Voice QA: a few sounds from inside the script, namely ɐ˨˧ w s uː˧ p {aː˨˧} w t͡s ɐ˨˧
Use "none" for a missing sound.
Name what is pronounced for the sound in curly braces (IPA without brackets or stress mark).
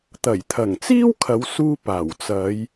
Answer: aː˨˩